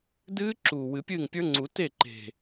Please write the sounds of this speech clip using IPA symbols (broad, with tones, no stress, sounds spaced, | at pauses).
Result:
d ɨː˦˥ ǁ uː˨˩ w ɨ˨˩˦ pʲ ɨː˥˩ ŋ pʲ ə˞˦˥ ŋ͡ǀ u˨˩˦ t e˥˩ ǃ e̤˨˩